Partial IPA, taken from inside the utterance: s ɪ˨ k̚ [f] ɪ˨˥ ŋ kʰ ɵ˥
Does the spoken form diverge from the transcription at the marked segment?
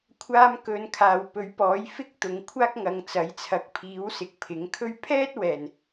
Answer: yes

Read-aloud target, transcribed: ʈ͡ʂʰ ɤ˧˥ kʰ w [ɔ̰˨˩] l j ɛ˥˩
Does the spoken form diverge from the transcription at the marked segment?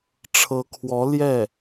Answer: yes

